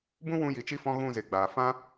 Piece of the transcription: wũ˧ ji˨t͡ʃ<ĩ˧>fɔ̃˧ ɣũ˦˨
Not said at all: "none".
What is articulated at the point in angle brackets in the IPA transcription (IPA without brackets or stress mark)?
i˧